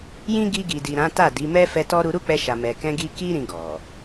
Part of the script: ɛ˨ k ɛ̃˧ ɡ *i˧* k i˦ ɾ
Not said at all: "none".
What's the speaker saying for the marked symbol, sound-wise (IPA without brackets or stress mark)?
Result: i˧